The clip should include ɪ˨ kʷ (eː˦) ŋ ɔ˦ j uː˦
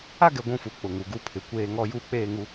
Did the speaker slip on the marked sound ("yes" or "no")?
no